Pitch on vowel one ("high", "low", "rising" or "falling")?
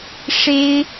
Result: high